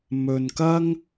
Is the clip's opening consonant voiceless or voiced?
voiced